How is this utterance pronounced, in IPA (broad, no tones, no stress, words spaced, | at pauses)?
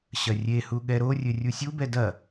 ɕɐrʲehu ɠɛɾorʲɘ rʲusʲubɛ dɐ